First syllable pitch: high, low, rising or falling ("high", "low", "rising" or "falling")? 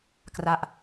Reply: falling